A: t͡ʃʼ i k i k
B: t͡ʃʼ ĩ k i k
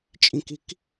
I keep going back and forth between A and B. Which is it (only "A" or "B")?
B